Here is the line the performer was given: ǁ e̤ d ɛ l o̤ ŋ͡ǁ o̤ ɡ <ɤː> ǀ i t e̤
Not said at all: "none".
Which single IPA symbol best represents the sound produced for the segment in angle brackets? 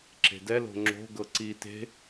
ɤ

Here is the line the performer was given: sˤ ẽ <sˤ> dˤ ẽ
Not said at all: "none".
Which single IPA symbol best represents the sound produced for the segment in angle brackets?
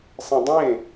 none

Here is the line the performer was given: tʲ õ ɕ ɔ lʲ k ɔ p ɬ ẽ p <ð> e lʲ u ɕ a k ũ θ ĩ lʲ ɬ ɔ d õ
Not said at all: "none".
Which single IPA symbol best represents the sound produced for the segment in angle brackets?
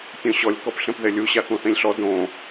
ð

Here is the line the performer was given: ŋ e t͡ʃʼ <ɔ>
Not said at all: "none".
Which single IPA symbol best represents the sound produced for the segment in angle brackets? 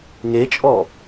ɔ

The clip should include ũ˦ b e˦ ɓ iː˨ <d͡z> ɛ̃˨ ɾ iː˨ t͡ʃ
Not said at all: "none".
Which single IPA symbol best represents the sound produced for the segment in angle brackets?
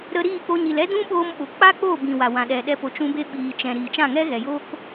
t͡ʃ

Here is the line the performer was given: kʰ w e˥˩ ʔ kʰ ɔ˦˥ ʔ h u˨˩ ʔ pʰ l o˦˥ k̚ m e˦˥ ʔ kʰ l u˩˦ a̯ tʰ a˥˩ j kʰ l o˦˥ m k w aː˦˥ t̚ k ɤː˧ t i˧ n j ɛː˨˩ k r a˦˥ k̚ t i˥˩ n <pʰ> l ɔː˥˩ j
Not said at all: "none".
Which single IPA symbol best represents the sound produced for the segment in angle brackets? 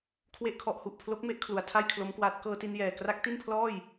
pʰ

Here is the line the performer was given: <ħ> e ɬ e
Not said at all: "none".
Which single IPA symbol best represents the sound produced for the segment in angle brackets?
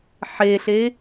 ħ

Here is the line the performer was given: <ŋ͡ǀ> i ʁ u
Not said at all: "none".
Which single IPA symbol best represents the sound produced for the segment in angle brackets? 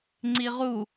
ŋ͡ǀ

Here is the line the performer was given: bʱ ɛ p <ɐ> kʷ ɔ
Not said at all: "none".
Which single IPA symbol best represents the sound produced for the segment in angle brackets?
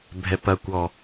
ɐ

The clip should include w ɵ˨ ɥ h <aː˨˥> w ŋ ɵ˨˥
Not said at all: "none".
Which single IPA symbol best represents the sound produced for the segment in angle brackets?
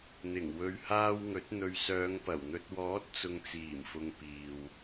aː˧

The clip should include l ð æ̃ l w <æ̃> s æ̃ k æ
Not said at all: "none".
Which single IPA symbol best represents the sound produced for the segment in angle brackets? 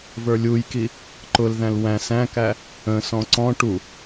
æ̃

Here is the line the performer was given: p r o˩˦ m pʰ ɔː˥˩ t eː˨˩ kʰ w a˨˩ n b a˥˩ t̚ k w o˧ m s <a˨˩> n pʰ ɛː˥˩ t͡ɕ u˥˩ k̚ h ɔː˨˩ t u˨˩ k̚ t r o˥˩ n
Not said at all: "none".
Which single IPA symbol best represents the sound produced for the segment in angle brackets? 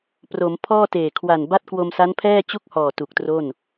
a˦˥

